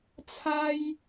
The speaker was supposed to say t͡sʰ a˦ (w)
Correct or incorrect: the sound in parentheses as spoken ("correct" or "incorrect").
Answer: incorrect